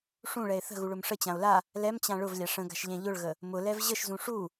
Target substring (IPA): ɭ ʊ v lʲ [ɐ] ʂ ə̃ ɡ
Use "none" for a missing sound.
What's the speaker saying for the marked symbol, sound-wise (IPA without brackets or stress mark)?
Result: a